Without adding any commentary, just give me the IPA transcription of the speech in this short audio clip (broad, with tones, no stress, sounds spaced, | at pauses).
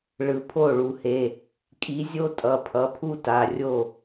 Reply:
ɭ ɯ˩ pʰ o˥˩ ɭ u˩ h e˩˧˩ | kʼ i˨˦ zʲ o˥ tʼ ʌ˩˧˩ pʰ ʌ˩˧˩ pʰ u˥ t a˩˧˩ rʲ o˥˩